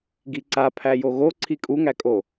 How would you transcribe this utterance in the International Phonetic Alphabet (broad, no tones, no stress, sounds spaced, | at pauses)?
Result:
ɡ i ǀ a pʰ æ j o ɣ o ǀʰ i kʼ u ŋ æ kʼ o